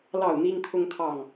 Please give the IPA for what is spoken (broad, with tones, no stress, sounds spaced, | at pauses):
l ɑ˥˨ ʊ̯ n̪ i˦ ŋ t̪ʰ ʊ˦ ŋ t̪ʰ ɑ˥˨ ŋ